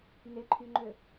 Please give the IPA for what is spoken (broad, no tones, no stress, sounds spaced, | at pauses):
n e ǃʰ y ŋ͡ǃ ø